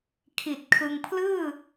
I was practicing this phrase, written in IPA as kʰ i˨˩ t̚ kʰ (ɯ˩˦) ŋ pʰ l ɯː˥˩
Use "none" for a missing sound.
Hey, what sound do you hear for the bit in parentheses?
ɯ˧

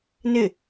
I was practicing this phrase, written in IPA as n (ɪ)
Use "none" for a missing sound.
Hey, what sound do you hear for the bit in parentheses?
ɪ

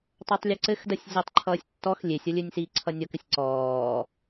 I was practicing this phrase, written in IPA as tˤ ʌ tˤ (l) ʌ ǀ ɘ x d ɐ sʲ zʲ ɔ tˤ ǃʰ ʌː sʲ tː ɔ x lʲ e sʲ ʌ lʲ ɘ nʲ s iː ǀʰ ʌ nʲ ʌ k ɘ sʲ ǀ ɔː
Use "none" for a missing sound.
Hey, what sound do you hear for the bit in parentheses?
lʲ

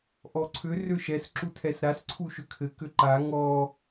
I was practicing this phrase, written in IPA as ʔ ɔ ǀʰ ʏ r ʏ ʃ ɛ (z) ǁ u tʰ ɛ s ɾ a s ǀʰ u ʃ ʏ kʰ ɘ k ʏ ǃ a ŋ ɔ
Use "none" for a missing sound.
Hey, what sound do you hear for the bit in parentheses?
s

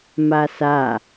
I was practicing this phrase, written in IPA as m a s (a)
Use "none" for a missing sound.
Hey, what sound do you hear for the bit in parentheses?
a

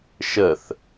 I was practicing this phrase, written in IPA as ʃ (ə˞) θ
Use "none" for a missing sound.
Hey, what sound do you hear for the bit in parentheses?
ə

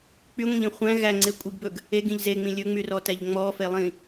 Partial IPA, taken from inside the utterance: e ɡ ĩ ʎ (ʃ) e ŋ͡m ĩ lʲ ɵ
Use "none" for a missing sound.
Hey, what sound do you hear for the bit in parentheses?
z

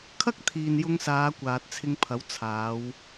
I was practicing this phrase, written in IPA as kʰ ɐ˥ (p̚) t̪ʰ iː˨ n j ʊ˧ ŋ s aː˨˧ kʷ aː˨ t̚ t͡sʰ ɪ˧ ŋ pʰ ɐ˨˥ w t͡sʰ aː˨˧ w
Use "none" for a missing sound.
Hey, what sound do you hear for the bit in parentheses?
k̚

